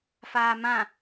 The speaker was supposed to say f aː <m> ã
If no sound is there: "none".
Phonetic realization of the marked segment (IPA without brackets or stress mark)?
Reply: m